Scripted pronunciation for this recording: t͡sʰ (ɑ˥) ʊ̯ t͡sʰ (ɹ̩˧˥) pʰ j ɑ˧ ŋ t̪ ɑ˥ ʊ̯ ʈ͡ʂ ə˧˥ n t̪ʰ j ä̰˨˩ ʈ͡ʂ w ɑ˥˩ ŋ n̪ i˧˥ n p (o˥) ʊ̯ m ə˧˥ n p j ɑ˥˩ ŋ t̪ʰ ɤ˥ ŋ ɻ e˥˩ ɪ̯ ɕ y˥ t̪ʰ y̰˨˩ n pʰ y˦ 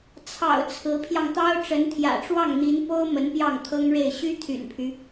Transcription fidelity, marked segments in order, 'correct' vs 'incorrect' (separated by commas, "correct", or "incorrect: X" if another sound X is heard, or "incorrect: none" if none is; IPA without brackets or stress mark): incorrect: ɑ̰˨˩, correct, correct